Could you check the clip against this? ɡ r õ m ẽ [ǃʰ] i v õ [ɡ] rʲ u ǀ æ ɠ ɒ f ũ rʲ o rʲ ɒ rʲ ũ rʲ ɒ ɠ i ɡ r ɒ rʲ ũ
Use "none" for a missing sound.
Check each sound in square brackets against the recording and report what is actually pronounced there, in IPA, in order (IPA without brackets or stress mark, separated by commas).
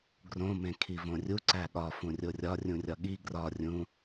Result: kʰ, none